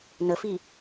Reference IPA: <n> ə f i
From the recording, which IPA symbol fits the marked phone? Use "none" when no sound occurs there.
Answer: n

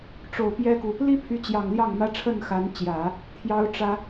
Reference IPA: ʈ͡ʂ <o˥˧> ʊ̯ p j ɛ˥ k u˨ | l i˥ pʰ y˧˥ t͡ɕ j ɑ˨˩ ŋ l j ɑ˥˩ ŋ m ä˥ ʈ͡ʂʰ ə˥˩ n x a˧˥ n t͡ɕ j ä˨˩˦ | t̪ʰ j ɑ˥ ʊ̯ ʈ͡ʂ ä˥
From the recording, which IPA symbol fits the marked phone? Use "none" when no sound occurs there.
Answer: o˨˩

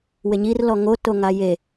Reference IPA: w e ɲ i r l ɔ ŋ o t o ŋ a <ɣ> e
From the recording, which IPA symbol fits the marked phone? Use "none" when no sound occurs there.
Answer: j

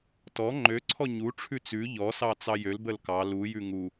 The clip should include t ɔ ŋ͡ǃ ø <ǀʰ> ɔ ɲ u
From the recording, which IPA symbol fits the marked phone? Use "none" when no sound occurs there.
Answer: ǀʰ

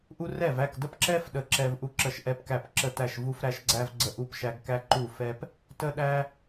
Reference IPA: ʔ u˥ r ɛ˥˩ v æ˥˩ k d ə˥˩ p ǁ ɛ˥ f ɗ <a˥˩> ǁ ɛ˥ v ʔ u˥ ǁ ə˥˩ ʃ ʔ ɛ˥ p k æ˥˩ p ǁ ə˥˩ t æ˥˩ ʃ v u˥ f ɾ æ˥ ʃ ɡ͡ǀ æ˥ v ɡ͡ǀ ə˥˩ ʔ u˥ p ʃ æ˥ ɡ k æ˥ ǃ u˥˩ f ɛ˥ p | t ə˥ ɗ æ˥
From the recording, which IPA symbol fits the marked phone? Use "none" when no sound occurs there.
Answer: ə˥˩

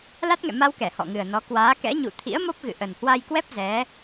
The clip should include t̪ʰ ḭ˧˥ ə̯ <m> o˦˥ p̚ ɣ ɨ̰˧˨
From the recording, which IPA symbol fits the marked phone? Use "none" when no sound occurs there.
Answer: m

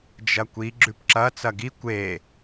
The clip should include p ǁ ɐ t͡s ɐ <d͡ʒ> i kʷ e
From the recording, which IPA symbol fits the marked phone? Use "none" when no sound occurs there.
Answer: ɡ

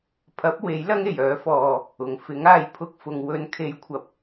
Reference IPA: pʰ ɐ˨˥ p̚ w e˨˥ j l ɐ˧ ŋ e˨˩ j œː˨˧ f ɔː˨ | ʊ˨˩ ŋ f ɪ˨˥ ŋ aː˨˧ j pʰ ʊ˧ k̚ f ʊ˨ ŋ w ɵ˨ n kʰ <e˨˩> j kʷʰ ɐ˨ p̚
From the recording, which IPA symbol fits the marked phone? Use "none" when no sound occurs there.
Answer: e˨˧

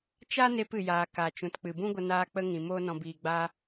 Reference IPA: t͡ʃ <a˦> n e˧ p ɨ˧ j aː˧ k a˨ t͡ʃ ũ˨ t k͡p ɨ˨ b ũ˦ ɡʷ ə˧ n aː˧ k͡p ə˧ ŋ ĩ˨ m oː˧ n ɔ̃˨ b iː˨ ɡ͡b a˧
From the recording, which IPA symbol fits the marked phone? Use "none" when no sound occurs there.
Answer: a˦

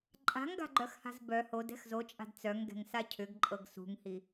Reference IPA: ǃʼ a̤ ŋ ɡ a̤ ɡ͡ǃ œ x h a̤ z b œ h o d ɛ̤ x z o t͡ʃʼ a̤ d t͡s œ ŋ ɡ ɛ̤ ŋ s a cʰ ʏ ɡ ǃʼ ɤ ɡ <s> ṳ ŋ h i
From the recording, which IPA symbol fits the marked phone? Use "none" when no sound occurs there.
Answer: s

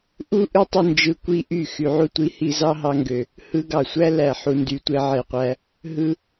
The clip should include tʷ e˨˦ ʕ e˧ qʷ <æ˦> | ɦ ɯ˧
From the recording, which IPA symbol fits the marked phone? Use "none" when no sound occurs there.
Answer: æ˦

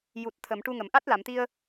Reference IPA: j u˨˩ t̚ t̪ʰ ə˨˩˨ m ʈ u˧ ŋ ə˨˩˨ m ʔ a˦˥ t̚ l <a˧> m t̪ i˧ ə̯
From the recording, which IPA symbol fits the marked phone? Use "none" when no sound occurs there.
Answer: a˨˩˨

